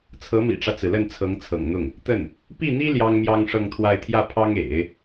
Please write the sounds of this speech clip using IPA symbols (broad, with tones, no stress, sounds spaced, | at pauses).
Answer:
t͡sʰ ɤ˧˥ m ḭ˨˩ ʈ͡ʂ ä˦ t͡s ɹ̩˩ l ə˥˩ n t͡sʰ ɤ˧˥ ŋ t͡sʰ ɤ̰˨˩ ŋ n̪ ʊ˥˩ ŋ | t̪ ə˥˩ n | p i˥˩ n̪ i˥ l j ɑ˥ ŋ m j ɑ˥ ŋ ʂ ɤ˥˧ ŋ t̪ʰ w a˥˧ ɪ̯ t̪ʰ j ä˥˩ pʰ ɑ˥ ŋ ḛ˨˩˦ ɪ̯